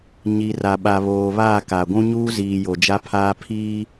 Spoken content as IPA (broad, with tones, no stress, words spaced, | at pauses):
ɲi˨ra˨ɓa˨ βoː˨βaː˦˨ ka˨ɡʷũ˦ ɲuː˦ziː˨ jo˨d͡ʒa˦pʰaː˦ pʰiː˦